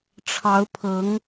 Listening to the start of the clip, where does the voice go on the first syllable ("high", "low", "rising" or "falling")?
rising